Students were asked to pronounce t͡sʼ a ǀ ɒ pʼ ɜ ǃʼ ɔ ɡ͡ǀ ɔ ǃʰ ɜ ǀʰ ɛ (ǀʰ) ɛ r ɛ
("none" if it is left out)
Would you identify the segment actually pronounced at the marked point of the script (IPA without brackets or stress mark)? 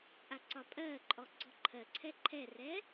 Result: ǃʰ